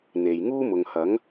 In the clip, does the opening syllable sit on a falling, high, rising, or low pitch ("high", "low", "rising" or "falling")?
low